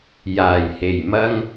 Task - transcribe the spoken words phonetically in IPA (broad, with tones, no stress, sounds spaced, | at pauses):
j aː˨˩ j h e˨˩ j m ɐ˥ ŋ